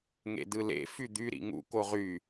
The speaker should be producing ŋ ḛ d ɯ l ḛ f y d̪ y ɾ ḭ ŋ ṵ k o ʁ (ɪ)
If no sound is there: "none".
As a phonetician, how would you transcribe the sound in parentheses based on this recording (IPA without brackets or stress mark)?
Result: y